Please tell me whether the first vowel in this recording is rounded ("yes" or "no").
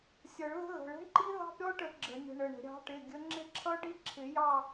no